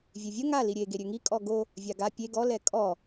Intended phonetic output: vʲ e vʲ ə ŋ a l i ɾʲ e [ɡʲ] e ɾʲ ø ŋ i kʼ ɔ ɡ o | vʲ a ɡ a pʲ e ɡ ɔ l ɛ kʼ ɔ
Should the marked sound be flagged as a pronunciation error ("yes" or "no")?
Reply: yes